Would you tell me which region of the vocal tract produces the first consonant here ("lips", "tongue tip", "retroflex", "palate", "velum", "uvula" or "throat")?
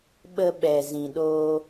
lips